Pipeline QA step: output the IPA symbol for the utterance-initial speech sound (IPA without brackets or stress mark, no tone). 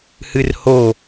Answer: h